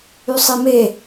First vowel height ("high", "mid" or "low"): high